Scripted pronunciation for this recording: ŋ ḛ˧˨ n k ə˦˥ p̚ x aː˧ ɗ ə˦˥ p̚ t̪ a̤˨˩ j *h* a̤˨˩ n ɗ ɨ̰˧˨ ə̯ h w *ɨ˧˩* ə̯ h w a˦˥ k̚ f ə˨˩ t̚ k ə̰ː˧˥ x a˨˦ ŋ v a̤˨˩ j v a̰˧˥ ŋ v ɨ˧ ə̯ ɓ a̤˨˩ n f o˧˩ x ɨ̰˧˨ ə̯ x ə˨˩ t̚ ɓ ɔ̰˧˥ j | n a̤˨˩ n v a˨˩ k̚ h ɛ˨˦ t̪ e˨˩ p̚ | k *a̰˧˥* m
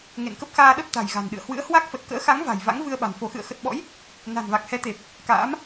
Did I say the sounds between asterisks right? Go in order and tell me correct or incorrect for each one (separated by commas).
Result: incorrect, incorrect, incorrect